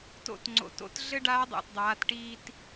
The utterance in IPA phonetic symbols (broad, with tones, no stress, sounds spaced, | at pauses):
t o̰˧ t ŋ͡ǀ o̰˩ t o̰˧˥ t ɮ ɘ˥ ɖ aː˧˥ dˤ ḛ˩ t dˤ aː˩˧ t ʈ iː˧ t